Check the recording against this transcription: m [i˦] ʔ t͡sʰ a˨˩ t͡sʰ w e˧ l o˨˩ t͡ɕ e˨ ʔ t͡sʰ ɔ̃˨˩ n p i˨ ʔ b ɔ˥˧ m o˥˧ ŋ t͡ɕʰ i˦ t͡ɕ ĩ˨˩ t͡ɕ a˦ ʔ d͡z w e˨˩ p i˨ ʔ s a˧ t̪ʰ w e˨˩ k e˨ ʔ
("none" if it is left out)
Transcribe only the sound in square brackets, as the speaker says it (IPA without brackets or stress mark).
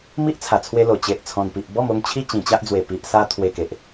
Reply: i˦